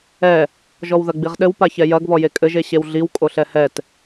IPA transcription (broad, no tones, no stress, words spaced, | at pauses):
ɛ | ʒɔwðɐɡ͡biʁɗɘw paçɛjɐɡ βɔjekʼɘʒ eɕewɮiw kʼoɬɛhɛt